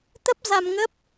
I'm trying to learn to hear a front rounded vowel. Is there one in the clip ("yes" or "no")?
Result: no